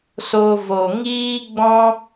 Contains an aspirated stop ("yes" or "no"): no